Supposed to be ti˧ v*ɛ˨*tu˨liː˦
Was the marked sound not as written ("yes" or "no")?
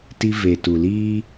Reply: yes